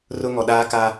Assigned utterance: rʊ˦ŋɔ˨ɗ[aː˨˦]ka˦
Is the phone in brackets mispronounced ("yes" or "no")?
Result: yes